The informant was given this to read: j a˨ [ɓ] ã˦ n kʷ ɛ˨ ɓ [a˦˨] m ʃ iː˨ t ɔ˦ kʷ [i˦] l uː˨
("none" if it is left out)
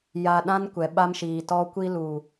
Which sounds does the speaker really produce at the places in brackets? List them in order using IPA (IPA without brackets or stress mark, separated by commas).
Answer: ɗ, a˦, i˦